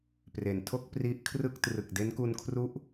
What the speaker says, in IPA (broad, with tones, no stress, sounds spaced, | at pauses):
p r e˩˦ n tʰ o˥˩ k̚ p r i˦˥ ʔ kʰ r ɯ˥˩ k̚ t r ɯ˨˩ k̚ d e˦˥ n k u˧ n kʰ r u˦˥ ʔ